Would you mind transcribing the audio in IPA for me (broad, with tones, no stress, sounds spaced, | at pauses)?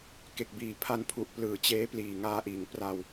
k e˨˩ k̚ b iː˨˩ pʰ a˧ n pʰ u˨˩ ʔ p l ɯː˩˦ t͡ɕ eː˦˥ p l iː˨˩ ŋ aː˧ ʔ iː˩˦ ŋ p r a˧ w